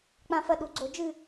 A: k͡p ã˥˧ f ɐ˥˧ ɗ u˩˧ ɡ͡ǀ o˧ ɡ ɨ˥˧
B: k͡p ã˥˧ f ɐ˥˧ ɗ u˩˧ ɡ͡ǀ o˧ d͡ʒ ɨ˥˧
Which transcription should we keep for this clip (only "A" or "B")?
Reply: B